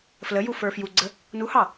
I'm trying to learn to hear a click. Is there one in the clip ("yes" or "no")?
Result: yes